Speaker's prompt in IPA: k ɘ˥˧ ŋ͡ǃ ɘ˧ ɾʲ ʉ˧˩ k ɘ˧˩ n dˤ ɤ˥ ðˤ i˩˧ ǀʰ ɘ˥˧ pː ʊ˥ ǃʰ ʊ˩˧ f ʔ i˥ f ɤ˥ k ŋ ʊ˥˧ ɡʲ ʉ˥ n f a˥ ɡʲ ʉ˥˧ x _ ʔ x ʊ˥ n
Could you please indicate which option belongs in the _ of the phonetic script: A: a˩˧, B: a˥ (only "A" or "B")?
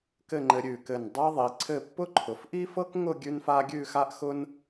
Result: B